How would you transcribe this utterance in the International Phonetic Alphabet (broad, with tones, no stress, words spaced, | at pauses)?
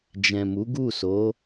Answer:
d͡ʒɛ̃˨mu˨˦ɡu˦˨so˨˦